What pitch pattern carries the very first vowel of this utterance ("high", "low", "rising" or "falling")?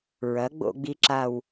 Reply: rising